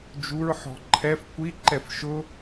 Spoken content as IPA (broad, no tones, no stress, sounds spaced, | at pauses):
d͡ʒ u ɹ ħ ɔ̤ ǃʰ ɛ f kʷ i ǃ ɛ f ʃ ʊ